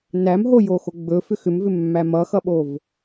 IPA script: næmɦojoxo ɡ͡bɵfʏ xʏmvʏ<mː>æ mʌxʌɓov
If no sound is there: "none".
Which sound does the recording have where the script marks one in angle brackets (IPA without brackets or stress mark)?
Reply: mː